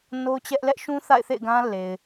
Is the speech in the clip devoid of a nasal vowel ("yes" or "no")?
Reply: no